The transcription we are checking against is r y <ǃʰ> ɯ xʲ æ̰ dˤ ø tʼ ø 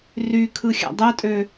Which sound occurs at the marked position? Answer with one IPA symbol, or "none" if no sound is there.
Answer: kʰ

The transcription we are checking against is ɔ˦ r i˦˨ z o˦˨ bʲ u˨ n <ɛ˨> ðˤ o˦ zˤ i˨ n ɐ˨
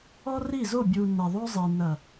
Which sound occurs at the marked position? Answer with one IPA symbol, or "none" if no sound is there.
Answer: ɛ˨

